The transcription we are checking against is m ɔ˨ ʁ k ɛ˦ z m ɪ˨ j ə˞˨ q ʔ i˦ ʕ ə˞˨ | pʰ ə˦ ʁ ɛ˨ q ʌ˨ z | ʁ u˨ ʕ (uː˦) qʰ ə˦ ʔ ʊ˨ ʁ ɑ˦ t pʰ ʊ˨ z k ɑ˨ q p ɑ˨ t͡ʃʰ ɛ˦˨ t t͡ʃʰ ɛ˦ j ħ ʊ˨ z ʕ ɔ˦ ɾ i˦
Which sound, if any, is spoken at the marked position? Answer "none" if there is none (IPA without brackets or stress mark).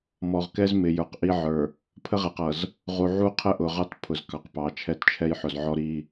u˦